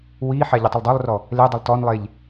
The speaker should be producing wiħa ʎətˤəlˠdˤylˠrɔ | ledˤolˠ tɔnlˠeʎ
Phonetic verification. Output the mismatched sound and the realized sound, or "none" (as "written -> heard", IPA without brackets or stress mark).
none